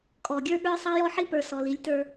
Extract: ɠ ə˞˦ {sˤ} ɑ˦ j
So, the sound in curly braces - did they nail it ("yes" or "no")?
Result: yes